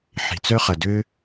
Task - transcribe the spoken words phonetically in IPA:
ħ i̤˩ t͡s œ˥ χ ɐ˩ d ø˥

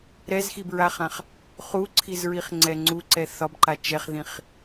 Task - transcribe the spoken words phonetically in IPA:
ɾ ɛ z x i b ɹ a χ ã χ | χ u ǀʰ i z ɹ i χ ŋ͡ǀ ɛ ŋ͡ǀ u ǀ ɛ θ ɒ b ǃ a t͡ʃ ɛ χ ð ĩ χ

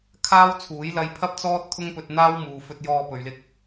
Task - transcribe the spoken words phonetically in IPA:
kʰ aː˥ w t͡sʰ uː˨˥ j l ɐ˧ j pʰ ɐ˥ p̚ t͡s ɔː˥ t̚ t̪ʰ ʊ˥ ŋ p ɵ˧ t̚ n̪ aː˥ w m uː˨ f ɵ˧ t̚ j ɔː˧ p ɵ˨ ɥ l ɪ˧ k̚

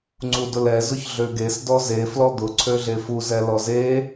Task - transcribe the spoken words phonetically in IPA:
ŋ͡ǀ u d ʊ l ɛ z ʊ ç ɮ ø ɡ e s d ɔ z e f l ɔ d̪ ʊ ǀʰ ø ɮ e f u z ɛ l ɔ z e

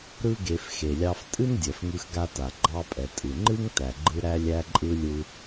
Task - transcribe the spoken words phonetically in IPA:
ɾ ɯ˥ ɡ e˧ f x e˩ lʲ ɑ˧ f tʼ ɨ˥ n dʲ ɛ˩ f ŋ ɯ˧ x ɡ a˧ t a˩ ɡ͡ǃ ɑ˧ pʼ ɛ˩ tʼ ɨ˩ ŋ͡ǃ ɨ˥ ŋ t æ˩ ɡ͡ǃ ɯ˧ ɾ æ˧ lʲ æ˧ ǃʼ ɯ˧ lʲ ɯ˧

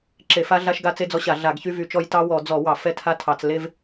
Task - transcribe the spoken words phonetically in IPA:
ǁ e˧˩˧ f a˦ ɮ a˦ ʃ ɡ a˦ t͡s e˦ d͡z ɔ˦ ɕ a˧˩˧ ɮ a˧˩˧ ɡ ç y˦ v y˧˩˧ t͡ʃ ɔ˦ j t ɑ˦ w ɔ˧˩˧ d͡z ɔ˧˩˧ w ɑ˧˩˧ f ɛ˦ tʰ a˦ tʰ ɑ˧˩˧ t͡s l e˦ v

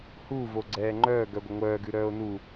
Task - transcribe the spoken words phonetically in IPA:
h u v o ɡ͡ǀ ɛː ŋ͡ǃ œː ɡ œ ɡʷ ə ŋʷ œː ɡ ʉ ɾ œː o̯ n u

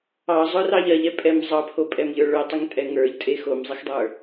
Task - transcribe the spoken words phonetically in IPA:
ɑ zˤ œ r ɑ ʎ ɜ ʎ ɛ pʼ ɛ m zˤ ɑ pʰ o pʼ ɛ m ʎ ə˞ ɭ œ tˤ u ŋ tʼ ɛ ŋ ə˞ ʎ tʼ e x o m zˤ e x dˤ ə˞

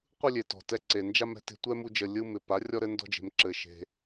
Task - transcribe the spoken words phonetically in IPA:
qʷ ɯ˦ lʲ e˨ t ɔ̤˨ t ɛ˧ ǀ e˨ n d͡ʒ a˦ m ɛ̤˦ t e̤˧ tʷ ɛ˦ m u˧ d͡ʒ ə˨ lʲ ɯ˧ m ɪ˨ p a˨˦ rʲ ɔ˦ ɾ ɘ˦ n d ɔ̤˦ d͡ʒ e̤˧ m ǁ ɘ˨ ʃ e̤˧

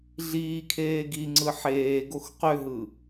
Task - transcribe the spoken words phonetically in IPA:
ɮ iː kʰ eː ɡ i ŋ͡ǀ ɯ ħ eː ɡ o x q ø ɦ ɯ

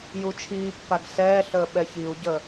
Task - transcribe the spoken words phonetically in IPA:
j u t͡ʃʰ iː pː a ɡ s ɛː ɬ əː ɓ ɛ ç i u̯ ɟ ə

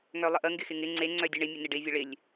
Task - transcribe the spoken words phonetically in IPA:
ŋ œ lˠ ə ʔ ə ŋ ɡ ɪ x ɪ ŋ ɪ ŋ͡ǀ e ŋ͡ǀ œ dʲ ə ɳ ɪ mʲ ə n ɪ ɖ ɪ vʲ ə ɭ ɪ lʲ

